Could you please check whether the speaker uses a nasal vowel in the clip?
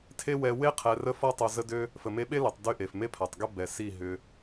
no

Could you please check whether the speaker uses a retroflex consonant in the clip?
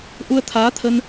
no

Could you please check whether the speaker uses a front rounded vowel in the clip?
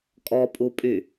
yes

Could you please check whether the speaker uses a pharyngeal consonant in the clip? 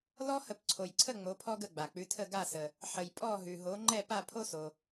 yes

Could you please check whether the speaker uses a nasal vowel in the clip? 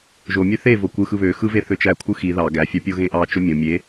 yes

